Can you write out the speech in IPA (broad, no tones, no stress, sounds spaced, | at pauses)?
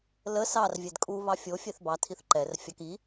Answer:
l ə s ɑ r vʲ ɛ d kʼ u β ɑ fʲ o fʲ ɛ θ b ɑ tʰ i θ ǃ ɛ r fʲ ɑ k i